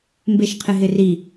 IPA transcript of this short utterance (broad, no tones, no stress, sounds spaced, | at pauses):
m b e ʃ qʰ ɪ ɦ ɪ r i